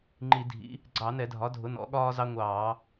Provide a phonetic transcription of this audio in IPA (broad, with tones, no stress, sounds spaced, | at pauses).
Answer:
ŋ͡ǃ i˧˩˧ dʱ ḭ˩˥ | ɡ͡ǀ ɑ˧˩˧ n ɛ˧˩˧ dʱ ɒ˩˥ dʱ ʊ˩˥ n ɔ̰˩˥ ɠ ɒː˦ z ɑ˦ ŋʷ ɑː˧˩˧